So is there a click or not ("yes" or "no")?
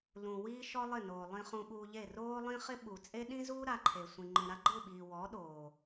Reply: yes